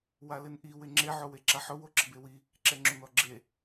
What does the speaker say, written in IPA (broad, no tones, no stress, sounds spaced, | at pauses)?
w a l ɪ n ʔ i w ɪ ŋ͡ǁ e ʕ o w e ǁ a ħ ʊ w o ǁ ɪ b e w i | ǁ ɛ ŋ͡ǁ ʊ n ɔ ɡ͡ǁ e